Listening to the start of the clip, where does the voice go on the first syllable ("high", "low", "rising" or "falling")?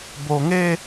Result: low